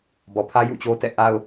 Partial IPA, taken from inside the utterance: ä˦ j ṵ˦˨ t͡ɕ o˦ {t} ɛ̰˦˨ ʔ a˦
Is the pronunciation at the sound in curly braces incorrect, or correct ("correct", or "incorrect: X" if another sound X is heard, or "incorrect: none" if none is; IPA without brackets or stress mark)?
correct